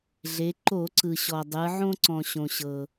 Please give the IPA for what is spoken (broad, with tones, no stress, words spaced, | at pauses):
ɮe˩˧ǃo˧˩˧ǀɯ˩ ɕɔ˩dˤɯ˩˧ ʕõ˧ǀɔ̃˩ɕõ˩ɕɤ˩